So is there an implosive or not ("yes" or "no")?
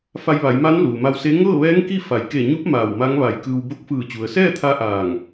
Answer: no